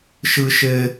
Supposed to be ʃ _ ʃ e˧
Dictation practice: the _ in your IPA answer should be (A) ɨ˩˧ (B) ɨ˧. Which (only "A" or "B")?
B